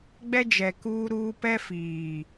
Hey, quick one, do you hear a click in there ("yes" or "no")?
no